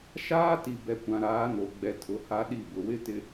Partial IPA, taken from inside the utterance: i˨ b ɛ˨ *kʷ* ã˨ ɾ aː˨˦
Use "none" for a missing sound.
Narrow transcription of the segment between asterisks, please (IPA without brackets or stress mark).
kʷ